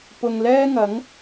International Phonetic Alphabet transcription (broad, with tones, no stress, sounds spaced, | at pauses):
p ʊ˨ ŋ l ɛː˥ ŋ ɐ˨˥ ŋ